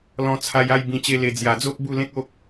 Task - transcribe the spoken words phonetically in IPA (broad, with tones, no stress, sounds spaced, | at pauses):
l ɔ̃˧ t͡sʰ a˧ j a˥˧ j b ĩ˧ t͡ɕ e˦ l e˧ d͡z j a˨˩ d͡z o˦ p̚ b u˥˧ l ẽ˦ k̚ o˦ k̚